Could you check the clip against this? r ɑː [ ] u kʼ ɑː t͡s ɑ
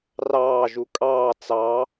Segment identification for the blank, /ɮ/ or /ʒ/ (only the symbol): ʒ